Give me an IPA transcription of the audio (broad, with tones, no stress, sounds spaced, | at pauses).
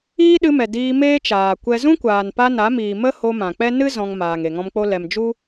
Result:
iː˦ ɗ ɨ˧ m ɛ˨ d iː˧ m eː˦ t͡ʃ aː˨ kʷ ɛ˧ z ũ˦ kʷ aː˨ n p a˧ n a˨˦ m iː˨ m ə˦ h o˧ m ã˨ k͡p ɛ˦ n ɨ˦ z ɔ̃˧ ŋ m aː˨ ŋ e˨ ŋ ɔ̃˧ m k͡p o˦ l ɛ˨ m d͡ʒ u˦